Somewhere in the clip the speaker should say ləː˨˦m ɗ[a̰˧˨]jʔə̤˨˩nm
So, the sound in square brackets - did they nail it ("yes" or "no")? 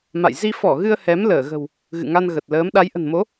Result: no